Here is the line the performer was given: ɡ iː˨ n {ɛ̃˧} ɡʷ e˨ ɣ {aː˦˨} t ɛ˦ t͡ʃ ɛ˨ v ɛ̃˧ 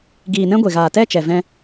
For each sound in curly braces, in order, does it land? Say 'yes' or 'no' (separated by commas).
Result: no, no